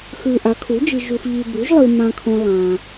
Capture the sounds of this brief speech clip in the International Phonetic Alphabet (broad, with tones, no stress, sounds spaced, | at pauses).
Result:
x ʉ˨ ʔ a˩˥ kʰ u˩˥ d͡ʒ ɨ˨ ʒ u˨ x ʎ i˨ b ʉ˩˥ ʒ lˠ ɨ˨ m ã˨ kʰ õ˨ lˠ ã˨